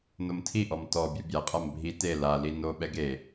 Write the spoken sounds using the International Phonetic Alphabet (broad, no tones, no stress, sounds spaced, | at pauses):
n o m tʰ i ʔ ɔ m t ɔ bʲ u bʲ a qʼ a m bʱ i t e l a l i n o ɓ ɛ ɡ e